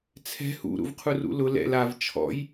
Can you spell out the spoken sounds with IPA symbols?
t͡sʰ ɛ̤ h ṵ ɾ ṵ v qʰ u r ṵ l ʊ l ɛ̰ l a v t͡ʃʰ ɔ̰ j

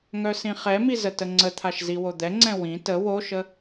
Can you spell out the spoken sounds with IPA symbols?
ŋ œ s ĩ χ ɛ m i z ə t ə ŋ͡ǀ ə t̪ʰ a ʃ z i w o d̪ ɛ ŋ͡ǀ ɛ̃ w ĩ t ə w o ʃ ə

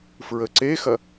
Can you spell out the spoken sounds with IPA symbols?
f ɹ ə ǀ e x ɐ

